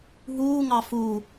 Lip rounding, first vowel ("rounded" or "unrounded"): rounded